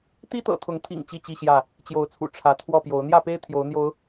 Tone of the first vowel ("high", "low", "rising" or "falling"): high